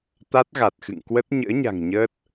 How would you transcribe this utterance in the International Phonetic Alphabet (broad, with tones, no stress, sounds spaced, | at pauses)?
t̪ a˦˥ t̚ ɣ a˨˩ t̚ x ɨ̰˧˨ ŋ k w ə˦˥ t̚ ɲ ə̰ː˧˥ ɲ a̤˨˩ ŋ ɲ əː˦˥ t̚